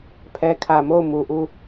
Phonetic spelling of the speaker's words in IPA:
pʰ ɛ˨ kʰ ä˨ m o˦˨ ʊ̯ m u˨ ʔ u˦˨

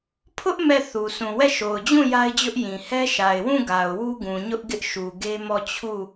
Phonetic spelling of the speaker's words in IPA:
pʰ ʊ˦ ʔ m ɛ˦˨ θ u˨ sʰ ũ˨ w ɛ˦˨ ʃ o˨ ʊ̯ d͡ʑ ũ˦˨ j a˦ ɪ̯ d͡ʑ ʊ˦ ʔ j ĩ˨ h ɛ˦ ʃ a˨ ɪ̯ w ũ˦˨ ɡ a˨ ʊ̯ w u˦ ɡ ũ˨ ɲ ʊ˦ ʔ ɡ ɪ˦ ʔ ʃ u˨ ɡ e˦ m ɔ˦˨ t͡ɕʰ u˦˨

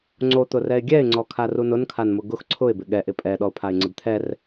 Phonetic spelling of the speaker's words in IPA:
ŋ͡ǀ o t̪ ʊ r ɛ ɪ̯ ɡʲ ɛ ɪ̯ ŋ͡ǀ ɔ kʰ a r u n ʊ n kʰ a n m ʊ ɡ ʊ x ǀʰ ʊ ɪ̯ b ɪ ɠ ɛ ʔ ɪ pʼ ɛ ɗ ɔ ʊ̯ pʰ a ɪ̯ ŋ͡ǀ ɪ b t̪ʰ ɛ r

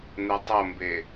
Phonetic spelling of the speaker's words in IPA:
n̪ ɛ tˤ o m b e

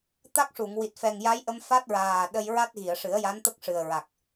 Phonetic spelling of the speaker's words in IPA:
t̪ a˦˥ k̚ ʂ u˨˩˨ ŋ w i˨˩ t̚ f ɛ˨˩ ŋ j a˧˥ j ʔ ə˧ m f a˦˥ t̚ ɹ aː˨˩ ɗ ə˧ j ɹ a˦˥ t̚ ɣ i˨˩˨ ə̯ ʂ ɨ˨˩˦ ə̯ j a˧˥ n t̪ ə˦˥ k̚ ʂ ɨ˨˩ ə̯ ɹ a˨˩ k̚

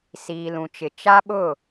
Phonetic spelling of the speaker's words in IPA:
s iː˨ l ũ˨ t͡ʃ ɪ˨ t͡ʃ a˦ ɓ ʊ˦˨

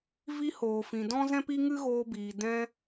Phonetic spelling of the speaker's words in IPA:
v i˧ h oː˨ f ĩ˨ d ɔ̃˦ z ɛ̃˦ p i˦ ŋ ɨ˦ ɣ oː˧ b iː˨ d ɛ̃˧

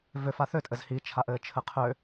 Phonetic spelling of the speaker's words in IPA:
v ø f a θ ø tʼ ɘ z h i t͡ʃʰ a ʔ ɘː t͡ʃʰ ɘ qʰ ø

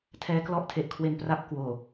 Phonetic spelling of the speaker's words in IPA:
tʰ ɛː˦˥ k l ɔ˦˥ ʔ tʰ e˨˩ ʔ kʰ w e˧ n p r a˥˩ p̚ k w oː˨˩

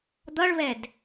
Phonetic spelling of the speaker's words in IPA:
d̪ ʌ ɭ β ɛ d

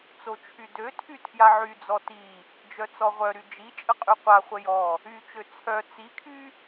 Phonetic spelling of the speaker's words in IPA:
t͡s o t͡ʃʰ y d ø tʰ y tʰ j a ʕ y d͡z ɔ t i | d͡ʒ œ t͡s ɔ ʁʷ œ ɾ y d͡ʒ i t͡ʃʼ ə qʼ y qʷ a χʷ ə j ɔ | y t͡ʃ ø t͡sʰ œ t͡s i kʰ y

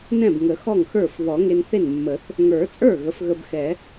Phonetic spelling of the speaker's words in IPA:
n ɛ̃˥˩ b ŋ ə˨˩˦ x ɔ˥˩ ŋ x ə˞˥˩ f β ɔ˨˩˦ ŋ e˧ n θ e˥˩ n mː ə˨˩˦ θ | ŋ ə˞˨˩˦ t͡sʼ ə˞˥˩ ɣ ə˩˥ f ɣ ə˧ b x ɛ˨˩˦

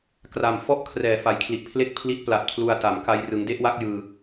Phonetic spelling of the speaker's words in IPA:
k r a˨˩ m f ɔ˥˩ ʔ kʰ r ɛː˨˩ f a˩˦ j kʰ l i˨˩ ʔ pʰ l e˥˩ k̚ pʰ l i˦˥ t̚ p l a˨˩ t̚ pʰ l u˧ a̯ t a˩˦ m k a˧ j r ɯ˩˦ ŋ d e˥˩ ʔ w a˦˥ k̚ j ɯː˧

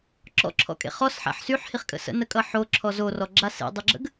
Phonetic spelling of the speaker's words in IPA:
ǁ ɔ̰ ǁʰ ɔ̰ kʼ ḛ χ ɔ s ħ a̰ ħ s y ħ h i χ kʼ ə̰ s ə̰ n ə kʼ ʌ ħ o ǁʰ ɔ z o r ɔ ɡ͡ǁ a s ḛ dˤ ɯ ɡ͡ǁ ə̰ ɡ

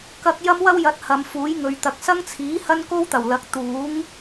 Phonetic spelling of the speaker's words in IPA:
k ɐ˧ k̚ j ɐ˥ m w ɐ˥ w j ɐ˨˥ t̚ h ɐ˨˧ m f uː˨˥ j ŋ ɵ˨ ɥ t̪ ɐ˨ k̚ s ɐ˥ ŋ t͡sʰ iː˨˥ h ɐ˥ n k o˥ w t̪ ɐ˨˩ w l ɐ˨˥ k̚ t̪ uː˨˥ ŋ

